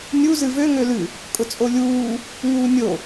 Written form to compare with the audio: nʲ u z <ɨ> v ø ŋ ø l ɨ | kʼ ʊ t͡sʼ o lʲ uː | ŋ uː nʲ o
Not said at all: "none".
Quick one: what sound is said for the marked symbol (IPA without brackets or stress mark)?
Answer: ɨ